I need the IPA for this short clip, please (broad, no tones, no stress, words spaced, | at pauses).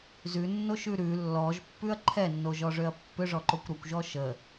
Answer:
zʉnːoʃʉ ɾʉ lːɔʒpːʉɐ̯ ǃʰɛnːoʒɔʐøɐ̯ pːʏʐɔǃokʷ ɾɔkʷʒɔ ʃə